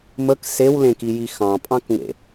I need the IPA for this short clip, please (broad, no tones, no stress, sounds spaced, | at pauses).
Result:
m ə k s e w l ẽ k i j i x ɑ̃ pʼ ɑ̃ k ŋ ḛ